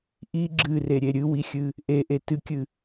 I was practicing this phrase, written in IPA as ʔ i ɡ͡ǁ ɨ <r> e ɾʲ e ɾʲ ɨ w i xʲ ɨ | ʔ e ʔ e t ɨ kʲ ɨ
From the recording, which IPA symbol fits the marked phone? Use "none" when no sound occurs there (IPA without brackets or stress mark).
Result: r